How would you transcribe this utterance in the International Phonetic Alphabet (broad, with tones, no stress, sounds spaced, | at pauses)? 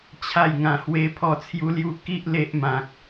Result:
t͡ɕʰ a˥˧ j ŋ ã˧ h w e˦ pʰ ɔ˥˧ t͡sʰ j u˦ l j u˦ k i˦ ʔ l e˦ ʔ m ã˨ k̚